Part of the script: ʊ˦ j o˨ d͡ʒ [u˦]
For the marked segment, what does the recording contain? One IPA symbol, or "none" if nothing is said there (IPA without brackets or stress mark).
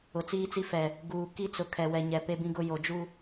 u˦